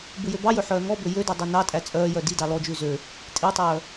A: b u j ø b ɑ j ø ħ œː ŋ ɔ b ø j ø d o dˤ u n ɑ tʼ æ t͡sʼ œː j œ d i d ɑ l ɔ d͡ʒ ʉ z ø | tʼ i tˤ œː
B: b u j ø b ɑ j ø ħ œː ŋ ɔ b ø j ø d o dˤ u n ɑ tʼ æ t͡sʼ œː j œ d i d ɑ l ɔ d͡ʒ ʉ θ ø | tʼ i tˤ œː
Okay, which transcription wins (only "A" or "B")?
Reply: A